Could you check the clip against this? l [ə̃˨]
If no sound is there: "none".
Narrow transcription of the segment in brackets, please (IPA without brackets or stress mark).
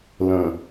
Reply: ə̃˨